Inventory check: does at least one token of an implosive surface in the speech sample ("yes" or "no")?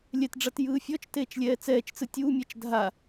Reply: no